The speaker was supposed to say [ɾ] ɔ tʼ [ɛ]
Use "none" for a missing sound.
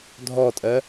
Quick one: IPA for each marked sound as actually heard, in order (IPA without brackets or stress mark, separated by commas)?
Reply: dʱ, ɜ